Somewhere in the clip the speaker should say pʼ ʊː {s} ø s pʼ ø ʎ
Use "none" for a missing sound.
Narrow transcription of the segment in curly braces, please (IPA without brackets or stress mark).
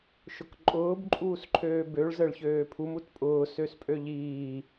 s